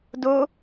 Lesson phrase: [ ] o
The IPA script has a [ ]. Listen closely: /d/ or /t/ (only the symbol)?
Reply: d